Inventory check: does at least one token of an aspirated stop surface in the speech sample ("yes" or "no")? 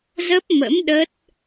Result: no